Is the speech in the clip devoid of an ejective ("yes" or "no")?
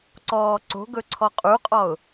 no